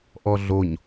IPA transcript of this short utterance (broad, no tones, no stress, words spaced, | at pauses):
ʔɔɮoɲ